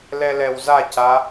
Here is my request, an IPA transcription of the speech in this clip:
l ɛ l ɛ w z a c a

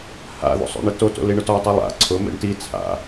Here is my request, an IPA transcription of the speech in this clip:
h a̰ ð o̰ sˤ o̰ ɳ ɪ t o t o̰ l i ɳ ʊ t ɔ w tˤ i lˠ a̰ ǀʰ ʊ m ḛ ɳ t i t͡sʰ a̰

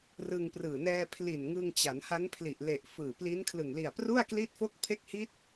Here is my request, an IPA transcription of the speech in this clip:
r ɯ˧ ŋ p r ɯː˨˩ n ɛː˧ pʰ l i˨˩ n ŋ ɯ˧ ŋ t͡ɕ a˩˦ n h a˦˥ n pʰ l i˨˩ ʔ l e˨˩ ʔ f ɯː˨˩ p l i˦˥ n kʰ l ɯ˨˩ ŋ l i˨˩ a̯ p r u˥˩ a̯ k l i˥˩ t̚ f o˥˩ k̚ pʰ e˦˥ k̚ h i˦˥ t̚

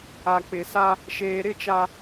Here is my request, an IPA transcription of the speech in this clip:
a˨ k͡p ɪ˨ s a˦ | ʃ eː˨ ɾ ɪ˦˨ t͡ʃ a˨

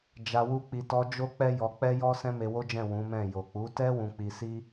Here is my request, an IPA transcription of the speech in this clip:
d͡ʒ a˧ w u˦ k͡p i˧ t ɔ˧ d͡ʒ o˦ k͡p ɛ˦ j ɔ˧ k͡p ɛ˦ j ɔ˦ s ɛ̃˦ m e˧ w o˦ d͡ʒ ɛ̃˦˨ w ũ˨˦ m ɛ̃˦˨ j o˨ k͡p u˨˦ t ɛ˦ w ũ˧ k͡p i˧ s i˦

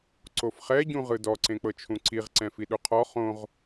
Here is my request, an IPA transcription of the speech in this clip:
ǀ o f χ ɛ ɟ ũ ʁ ɯ d ɔ ǀ ẽ k͡p ɤ t͡ʃʰ ũ ǀ i ʁ ǀ ɛ̃ f i ɗ u qʰ ɔ χ õ ʁ

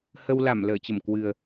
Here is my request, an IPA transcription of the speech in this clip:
h ə˧ w l a˧˩ m l əː˧˩ t͡ɕ ə˧˩ m k w ɨ˨˩ ə̯

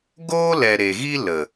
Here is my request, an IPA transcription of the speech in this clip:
ɡ oː˦ l ɛ˨ ɾ e˨ ɣ i˦ l ə˨

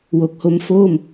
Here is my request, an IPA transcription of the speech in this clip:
w o˨˩ k̚ h o˧ m f o˥˩ m

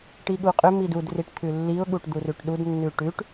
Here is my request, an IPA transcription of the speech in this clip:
ʈ i ɠ u qʼ ʏ m i d u d r i ʈ t̪ʰ ʉ lː i ʊ̯ ɠ u ʈ d̪ u r ʉ ʈ ɗ u d nː ʉ ʈ ʉ ʈ

